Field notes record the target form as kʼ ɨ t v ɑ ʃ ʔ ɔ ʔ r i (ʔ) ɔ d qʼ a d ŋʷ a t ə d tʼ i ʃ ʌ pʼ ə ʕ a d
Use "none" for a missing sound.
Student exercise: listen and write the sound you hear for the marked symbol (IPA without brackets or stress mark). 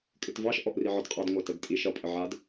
ʕ